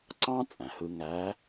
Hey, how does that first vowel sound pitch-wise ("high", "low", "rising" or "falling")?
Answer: high